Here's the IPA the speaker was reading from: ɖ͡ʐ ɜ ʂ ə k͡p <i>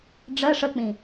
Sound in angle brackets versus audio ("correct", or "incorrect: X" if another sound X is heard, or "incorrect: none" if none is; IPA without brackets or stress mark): incorrect: ĩ